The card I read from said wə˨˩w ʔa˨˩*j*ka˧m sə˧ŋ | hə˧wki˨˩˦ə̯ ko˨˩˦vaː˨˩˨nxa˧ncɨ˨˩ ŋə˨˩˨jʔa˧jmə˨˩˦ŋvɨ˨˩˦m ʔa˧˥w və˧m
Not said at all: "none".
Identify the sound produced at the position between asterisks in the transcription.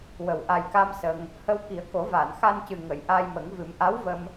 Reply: j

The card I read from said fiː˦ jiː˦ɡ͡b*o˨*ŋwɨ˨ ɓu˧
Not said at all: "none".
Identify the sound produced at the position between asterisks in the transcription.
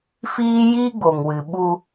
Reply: o˨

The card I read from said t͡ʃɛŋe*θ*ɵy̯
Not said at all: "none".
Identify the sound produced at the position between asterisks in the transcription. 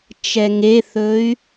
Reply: θ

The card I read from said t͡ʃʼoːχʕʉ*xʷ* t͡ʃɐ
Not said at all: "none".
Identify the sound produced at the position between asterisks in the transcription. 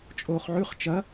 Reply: χ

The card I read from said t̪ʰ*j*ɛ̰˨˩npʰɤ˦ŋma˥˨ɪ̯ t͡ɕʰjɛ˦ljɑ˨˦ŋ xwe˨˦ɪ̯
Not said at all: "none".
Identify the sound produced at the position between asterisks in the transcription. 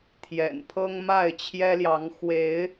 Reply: j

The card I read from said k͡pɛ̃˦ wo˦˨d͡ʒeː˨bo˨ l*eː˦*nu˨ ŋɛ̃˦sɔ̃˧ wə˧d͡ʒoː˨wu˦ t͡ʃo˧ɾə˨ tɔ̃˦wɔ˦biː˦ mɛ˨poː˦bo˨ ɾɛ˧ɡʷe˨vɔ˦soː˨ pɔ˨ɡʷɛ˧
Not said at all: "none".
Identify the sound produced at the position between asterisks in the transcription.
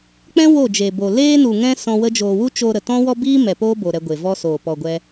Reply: eː˦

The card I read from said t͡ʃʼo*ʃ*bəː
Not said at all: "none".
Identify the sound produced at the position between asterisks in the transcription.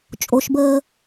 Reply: ʃ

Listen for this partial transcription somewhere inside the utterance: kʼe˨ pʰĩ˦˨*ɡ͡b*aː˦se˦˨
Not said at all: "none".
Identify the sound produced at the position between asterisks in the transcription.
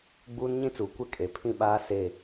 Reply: ɓ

